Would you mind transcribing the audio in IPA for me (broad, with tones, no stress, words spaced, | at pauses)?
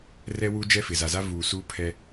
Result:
rɛ˦ wu˦ d͡ʒɛ˦fɪ˨ za˨za˦ vuː˨suː˦pʰɛ˦